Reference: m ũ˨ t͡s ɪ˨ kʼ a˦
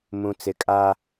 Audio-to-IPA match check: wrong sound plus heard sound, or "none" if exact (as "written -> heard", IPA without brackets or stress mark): none